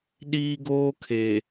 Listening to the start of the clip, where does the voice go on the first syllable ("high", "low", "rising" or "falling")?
high